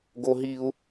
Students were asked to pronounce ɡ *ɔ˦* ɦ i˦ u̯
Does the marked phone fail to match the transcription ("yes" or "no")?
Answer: yes